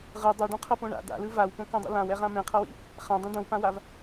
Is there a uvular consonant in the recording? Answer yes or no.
yes